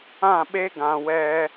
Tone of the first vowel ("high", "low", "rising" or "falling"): falling